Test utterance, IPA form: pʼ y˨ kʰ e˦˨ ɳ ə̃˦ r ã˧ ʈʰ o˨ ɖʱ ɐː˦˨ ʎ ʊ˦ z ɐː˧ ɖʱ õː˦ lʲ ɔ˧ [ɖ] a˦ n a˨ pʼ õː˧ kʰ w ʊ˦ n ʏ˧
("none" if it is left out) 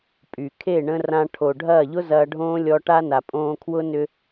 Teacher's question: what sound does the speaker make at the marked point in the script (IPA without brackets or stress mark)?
ʈ